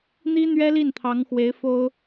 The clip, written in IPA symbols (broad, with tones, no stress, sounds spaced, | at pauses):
n̪ i˥ n̪ ɥ ɛ˥ l i˥˩ n t̪ʰ ɑ˧˥ ŋ x w e˧˥ ɪ̯ f o˥ ʊ̯